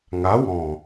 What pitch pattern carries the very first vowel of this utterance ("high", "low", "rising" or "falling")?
rising